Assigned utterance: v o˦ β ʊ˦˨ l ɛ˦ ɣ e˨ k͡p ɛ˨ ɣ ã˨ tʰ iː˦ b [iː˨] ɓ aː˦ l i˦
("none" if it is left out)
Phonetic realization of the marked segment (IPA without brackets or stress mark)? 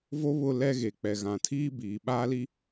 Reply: iː˨